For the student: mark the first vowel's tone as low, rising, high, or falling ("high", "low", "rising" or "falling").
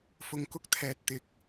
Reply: low